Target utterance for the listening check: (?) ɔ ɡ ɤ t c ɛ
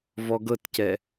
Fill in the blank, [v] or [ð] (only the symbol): v